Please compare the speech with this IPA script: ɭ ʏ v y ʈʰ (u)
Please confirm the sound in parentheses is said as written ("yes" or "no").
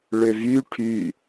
no